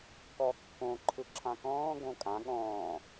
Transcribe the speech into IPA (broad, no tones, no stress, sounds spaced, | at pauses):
k ɔ kː õ ǃʰ ɯ ǁʰ ã k ɔ̃ː ɡ õ kʼ ã ɠ ɔ̃ː